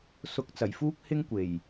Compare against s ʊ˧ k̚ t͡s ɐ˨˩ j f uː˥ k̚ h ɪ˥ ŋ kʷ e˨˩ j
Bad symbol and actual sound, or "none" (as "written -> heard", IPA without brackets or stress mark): none